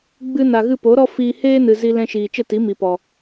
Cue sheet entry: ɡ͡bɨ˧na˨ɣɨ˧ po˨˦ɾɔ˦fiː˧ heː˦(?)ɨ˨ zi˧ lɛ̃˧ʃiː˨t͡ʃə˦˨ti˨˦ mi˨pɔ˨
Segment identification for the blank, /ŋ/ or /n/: n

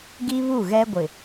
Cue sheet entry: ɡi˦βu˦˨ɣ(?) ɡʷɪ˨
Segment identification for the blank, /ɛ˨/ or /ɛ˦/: ɛ˦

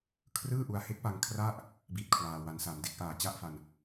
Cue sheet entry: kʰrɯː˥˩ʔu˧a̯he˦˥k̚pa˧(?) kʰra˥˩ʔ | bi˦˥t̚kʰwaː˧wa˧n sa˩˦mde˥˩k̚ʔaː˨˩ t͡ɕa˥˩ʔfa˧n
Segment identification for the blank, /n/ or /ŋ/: ŋ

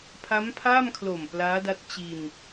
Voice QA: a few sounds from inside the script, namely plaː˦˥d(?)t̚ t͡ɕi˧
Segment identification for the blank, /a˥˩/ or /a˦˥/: a˦˥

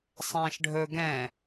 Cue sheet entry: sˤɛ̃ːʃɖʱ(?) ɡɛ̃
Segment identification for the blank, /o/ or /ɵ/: ɵ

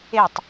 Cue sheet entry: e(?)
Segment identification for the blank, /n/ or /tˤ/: tˤ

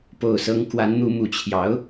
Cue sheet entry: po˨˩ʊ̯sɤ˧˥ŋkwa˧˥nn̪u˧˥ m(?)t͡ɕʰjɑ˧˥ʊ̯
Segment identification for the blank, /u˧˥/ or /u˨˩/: u˨˩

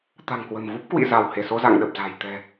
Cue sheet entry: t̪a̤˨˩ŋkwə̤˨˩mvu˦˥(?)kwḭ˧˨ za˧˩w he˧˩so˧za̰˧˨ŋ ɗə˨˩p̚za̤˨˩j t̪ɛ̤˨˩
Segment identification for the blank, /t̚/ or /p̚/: p̚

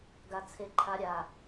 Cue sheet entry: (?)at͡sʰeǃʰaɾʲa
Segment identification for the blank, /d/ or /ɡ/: ɡ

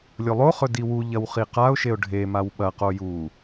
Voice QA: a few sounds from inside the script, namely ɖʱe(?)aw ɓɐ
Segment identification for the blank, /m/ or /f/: m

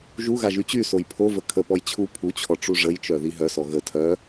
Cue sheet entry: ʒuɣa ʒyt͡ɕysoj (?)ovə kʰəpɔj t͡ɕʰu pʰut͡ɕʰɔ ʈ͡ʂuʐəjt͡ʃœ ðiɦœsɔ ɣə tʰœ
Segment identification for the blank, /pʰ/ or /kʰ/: pʰ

